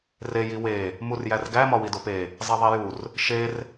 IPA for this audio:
r e j i w e | m u r j æ r ɡ æ m ɒ w i d o p e | zˤ i ðˤ i j u r | ʃ e r

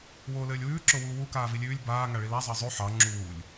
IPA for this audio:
w oː l ɘː lʲ w ʉː ǁ o w uː w u k aː v i lʲ ʉː lʲ b aː ŋ a ɭ i l a zˤ ɑ zˤ ʉ ħ ɑ ŋ͡ǁ uː lʲ

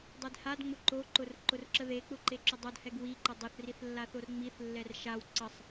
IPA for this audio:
dˤ e d h a d ŋ͡m ʊ ǃ o ǃ ʊ r ǃ ʊ r ǁ ə ð e k͡p ʊ ǃ e ǁ ʊ dˤ o d h ɛ ɡ w i ǃ ʊ dˤ o θ r i θ lː a θ o r ŋ͡m i θ lː ɛ r ʃ a w ǀ ə sˤ

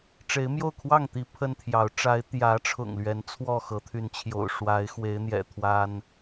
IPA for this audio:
ʈ͡ʂ e˨˦ ɪ̯ m j o˥˨ ʊ̯ kʰ w ɑ˥˨ ŋ t̪ i˨˦ pʰ ə˦ n t̪ʰ j ɑ˨˦ ʊ̯ ʈ͡ʂ a˨˦ ɪ̯ t̪ j ä˨˦ ʈ͡ʂʰ ʊ̰˨˩ ŋ l ɥ ɛ˨˦ n t͡sʰ w ɔ˥˨ x ɤ˨˦ t̪ʰ y˨˦ n t͡ɕʰ j o̰˨˩ ʊ̯ ʂ w a˨˦ ɪ̯ x w e˨˦ ɪ̯ n̪ j ɛ̰˨˩ t̪ʰ w a˦ n

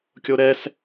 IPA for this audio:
kʲ o ɾ ɛ s

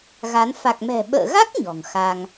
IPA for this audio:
ɣ a˨˦ n f a˨˩ k̚ m ɛ̤˨˩ ɓ ə̰ː˧˨ ɣ a˦˥ k̚ ɲ ɔ̤˨˩ ŋ x a˧ ŋ

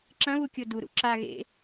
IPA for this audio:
ǁ ɐ̃ β u kʲ o d u ɾ ṵ ǁ a ɣ ḛ

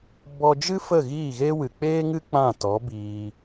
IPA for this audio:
b ɔ˧ d͡ʒ ɨ˦ f ə˦˨ ɣ iː˦˨ ɣ eː˦ w ɨ˨ k͡p eː˦ ŋ ɨ˦ k͡p ã˦˨ t ɔ˨˦ b iː˧

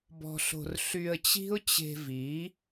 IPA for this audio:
b ɔ̤˧ ɬ o̤˧ r ɬ y˧ ə̯ t͡ɕ i̤˦ ʊ̯ t͡ɕ e̤˧ v i˨˦

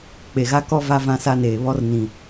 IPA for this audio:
k͡p e˨ ɣ a˦ k ɔ˦ v a˦ v ã˦ s a˦ n eː˨ β ɔ˦ r n ĩ˨

